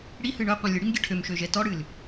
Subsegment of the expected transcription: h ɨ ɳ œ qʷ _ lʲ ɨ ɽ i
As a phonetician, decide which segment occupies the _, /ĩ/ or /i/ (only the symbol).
ĩ